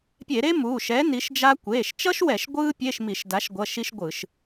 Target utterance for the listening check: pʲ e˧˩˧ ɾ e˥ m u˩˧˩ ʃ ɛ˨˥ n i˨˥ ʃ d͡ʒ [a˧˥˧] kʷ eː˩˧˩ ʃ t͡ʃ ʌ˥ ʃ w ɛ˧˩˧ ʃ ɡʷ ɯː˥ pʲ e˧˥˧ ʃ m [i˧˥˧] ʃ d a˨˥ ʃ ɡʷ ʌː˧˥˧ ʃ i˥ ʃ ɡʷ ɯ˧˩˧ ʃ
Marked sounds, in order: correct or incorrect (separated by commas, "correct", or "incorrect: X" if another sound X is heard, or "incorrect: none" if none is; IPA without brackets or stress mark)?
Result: incorrect: a˥, incorrect: i˧˩˧